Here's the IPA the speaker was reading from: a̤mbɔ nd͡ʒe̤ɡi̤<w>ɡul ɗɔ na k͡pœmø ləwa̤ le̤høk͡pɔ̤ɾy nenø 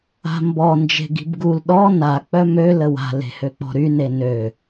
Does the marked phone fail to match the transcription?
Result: yes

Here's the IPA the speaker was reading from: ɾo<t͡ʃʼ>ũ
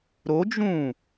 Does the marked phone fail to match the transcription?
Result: yes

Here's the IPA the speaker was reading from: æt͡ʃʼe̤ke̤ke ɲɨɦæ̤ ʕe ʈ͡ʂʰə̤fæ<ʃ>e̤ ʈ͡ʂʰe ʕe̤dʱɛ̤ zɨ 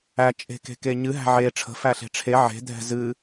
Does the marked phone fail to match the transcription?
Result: yes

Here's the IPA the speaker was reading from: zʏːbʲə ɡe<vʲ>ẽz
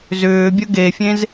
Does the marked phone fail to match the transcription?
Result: yes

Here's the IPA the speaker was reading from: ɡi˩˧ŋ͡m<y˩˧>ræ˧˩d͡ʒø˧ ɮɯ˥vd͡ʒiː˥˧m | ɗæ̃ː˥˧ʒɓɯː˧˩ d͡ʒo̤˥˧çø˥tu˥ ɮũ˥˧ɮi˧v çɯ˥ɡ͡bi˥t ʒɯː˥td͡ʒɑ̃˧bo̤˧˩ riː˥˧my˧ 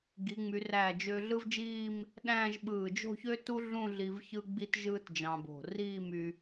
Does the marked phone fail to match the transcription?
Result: no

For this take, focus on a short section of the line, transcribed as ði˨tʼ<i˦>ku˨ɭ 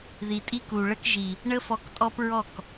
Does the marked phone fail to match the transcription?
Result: no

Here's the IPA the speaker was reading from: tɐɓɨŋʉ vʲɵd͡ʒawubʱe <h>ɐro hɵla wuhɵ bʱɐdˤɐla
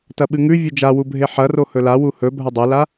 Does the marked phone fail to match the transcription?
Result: yes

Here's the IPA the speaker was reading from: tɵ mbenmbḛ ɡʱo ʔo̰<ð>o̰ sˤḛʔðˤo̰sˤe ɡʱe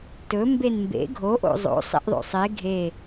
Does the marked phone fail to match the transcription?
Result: yes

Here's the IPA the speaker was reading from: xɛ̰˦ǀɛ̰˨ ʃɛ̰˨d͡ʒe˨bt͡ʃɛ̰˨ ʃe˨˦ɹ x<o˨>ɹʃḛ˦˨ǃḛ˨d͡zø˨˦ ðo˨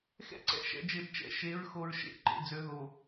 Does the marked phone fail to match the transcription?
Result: no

